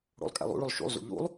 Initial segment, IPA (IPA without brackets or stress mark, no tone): ɽ